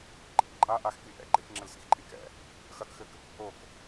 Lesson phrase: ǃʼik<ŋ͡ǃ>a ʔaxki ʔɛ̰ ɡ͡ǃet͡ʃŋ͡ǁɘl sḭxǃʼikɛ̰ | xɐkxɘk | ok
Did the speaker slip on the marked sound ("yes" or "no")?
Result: yes